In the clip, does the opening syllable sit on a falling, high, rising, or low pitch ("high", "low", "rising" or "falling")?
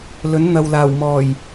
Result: rising